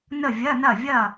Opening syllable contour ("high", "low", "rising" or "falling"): falling